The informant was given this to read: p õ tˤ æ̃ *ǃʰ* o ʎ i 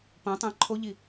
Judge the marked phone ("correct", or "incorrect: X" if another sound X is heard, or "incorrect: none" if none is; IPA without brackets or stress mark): correct